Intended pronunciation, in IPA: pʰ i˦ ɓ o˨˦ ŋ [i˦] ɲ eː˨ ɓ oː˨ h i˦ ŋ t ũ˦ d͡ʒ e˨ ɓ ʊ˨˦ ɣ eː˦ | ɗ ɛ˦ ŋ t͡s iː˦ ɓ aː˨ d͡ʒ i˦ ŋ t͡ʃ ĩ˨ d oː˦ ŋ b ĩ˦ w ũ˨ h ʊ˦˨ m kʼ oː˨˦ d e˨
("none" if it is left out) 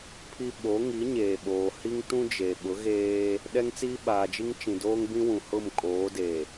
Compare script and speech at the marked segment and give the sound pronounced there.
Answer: i˨˦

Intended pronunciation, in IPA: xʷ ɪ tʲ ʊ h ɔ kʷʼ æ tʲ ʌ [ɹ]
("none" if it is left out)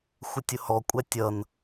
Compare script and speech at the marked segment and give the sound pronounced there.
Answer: n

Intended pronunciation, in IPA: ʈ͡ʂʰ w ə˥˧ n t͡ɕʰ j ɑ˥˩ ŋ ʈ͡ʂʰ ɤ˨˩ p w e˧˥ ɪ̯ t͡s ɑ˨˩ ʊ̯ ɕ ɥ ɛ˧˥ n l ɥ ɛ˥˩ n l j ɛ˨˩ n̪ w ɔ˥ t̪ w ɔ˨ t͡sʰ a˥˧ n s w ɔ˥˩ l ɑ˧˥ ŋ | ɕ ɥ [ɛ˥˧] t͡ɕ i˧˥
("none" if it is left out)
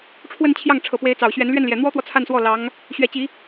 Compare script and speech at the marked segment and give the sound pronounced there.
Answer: ɛ˧˥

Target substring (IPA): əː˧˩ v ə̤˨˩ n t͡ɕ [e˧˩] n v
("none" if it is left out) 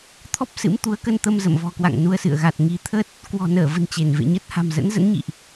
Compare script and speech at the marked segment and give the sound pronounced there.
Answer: e˧˩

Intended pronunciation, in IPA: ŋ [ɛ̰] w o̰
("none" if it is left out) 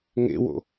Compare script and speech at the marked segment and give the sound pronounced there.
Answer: ḛ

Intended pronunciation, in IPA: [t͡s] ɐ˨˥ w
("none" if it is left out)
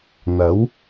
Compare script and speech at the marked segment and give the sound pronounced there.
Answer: n̪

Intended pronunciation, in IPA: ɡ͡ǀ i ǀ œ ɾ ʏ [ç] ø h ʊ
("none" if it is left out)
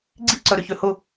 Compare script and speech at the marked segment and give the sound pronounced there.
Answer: ç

